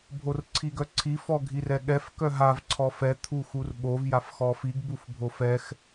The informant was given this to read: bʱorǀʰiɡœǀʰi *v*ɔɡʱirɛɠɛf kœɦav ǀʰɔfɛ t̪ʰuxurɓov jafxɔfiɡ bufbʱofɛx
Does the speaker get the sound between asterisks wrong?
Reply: yes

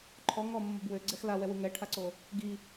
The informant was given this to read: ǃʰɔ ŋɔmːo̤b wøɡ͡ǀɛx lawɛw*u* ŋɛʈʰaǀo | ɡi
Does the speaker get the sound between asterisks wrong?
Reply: no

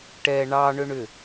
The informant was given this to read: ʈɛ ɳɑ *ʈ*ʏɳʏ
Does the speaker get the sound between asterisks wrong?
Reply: yes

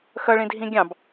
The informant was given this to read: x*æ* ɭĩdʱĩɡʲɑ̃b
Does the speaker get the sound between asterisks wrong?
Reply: yes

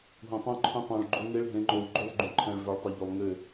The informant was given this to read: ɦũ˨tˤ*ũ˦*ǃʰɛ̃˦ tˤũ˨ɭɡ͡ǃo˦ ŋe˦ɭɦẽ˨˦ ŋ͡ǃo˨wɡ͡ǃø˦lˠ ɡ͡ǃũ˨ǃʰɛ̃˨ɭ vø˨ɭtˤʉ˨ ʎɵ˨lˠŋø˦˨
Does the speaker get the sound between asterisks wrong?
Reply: no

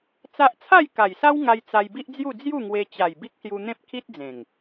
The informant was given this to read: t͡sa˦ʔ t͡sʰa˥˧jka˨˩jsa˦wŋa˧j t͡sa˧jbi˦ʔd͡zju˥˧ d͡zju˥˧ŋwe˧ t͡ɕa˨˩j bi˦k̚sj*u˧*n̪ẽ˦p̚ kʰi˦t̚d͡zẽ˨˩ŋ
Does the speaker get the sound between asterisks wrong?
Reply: no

